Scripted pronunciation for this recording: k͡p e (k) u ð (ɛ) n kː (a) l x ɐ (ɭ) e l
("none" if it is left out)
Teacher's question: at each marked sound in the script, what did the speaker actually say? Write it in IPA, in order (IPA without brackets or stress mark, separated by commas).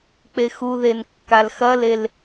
x, e, a, l